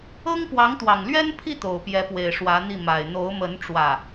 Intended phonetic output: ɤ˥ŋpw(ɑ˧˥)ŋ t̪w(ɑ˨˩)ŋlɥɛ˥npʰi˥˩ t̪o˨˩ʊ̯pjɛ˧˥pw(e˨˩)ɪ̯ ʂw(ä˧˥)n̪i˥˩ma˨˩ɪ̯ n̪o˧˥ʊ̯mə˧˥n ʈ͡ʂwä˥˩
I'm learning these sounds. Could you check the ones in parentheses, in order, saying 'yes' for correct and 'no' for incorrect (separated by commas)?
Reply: yes, yes, yes, yes